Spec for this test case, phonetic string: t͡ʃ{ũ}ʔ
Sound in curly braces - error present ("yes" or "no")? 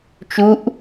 yes